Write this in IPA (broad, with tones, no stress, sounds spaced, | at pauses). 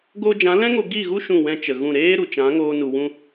ɡ oː˧ d͡ʒ ã˨˦ l ɛ̃˦ ŋ o˧ ɡ i˦˨ ɣ u˦ ʃ ũ˦˨ w ɛ̃˦ t͡ʃ ə˨ ɣ ũ˦˨ ɾ eː˦ ɾ u˨ t͡ʃ ã˨˦ ŋ oː˧ n u˨ w ũ˧